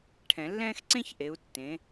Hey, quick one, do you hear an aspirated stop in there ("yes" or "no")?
yes